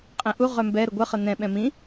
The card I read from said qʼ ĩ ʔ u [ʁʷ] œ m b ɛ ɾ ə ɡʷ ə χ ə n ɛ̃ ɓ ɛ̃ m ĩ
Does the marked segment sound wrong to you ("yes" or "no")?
yes